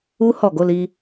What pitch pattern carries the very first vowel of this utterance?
high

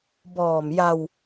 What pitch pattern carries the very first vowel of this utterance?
low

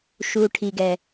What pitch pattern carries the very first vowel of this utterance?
low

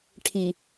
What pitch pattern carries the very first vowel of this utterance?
low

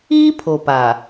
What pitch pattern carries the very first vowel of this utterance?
high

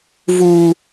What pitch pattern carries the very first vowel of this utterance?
high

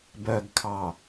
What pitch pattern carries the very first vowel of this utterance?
low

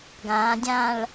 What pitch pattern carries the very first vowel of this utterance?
rising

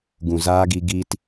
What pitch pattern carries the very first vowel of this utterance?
low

